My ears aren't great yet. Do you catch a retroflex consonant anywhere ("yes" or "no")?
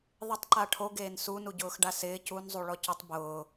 yes